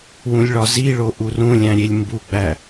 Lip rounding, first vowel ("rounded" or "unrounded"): rounded